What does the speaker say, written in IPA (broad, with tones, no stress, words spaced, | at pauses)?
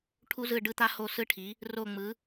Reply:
ʈʰu˦˥zɯ˦˨ɖɯ˦˥t̪a˦˥ ho˦˨ sɯ˦˥ʈʰi˩˥ | ro˦˨ŋ͡mɯ˩˥